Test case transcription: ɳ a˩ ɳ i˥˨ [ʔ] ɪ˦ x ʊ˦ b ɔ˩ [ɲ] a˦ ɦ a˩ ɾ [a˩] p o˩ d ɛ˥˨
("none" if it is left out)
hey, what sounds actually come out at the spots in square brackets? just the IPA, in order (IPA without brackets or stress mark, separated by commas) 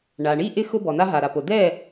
ʔ, n, a˩